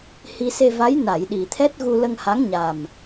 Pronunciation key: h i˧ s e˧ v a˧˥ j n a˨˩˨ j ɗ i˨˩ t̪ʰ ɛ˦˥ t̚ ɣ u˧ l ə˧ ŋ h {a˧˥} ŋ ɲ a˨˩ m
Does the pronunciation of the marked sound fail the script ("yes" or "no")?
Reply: no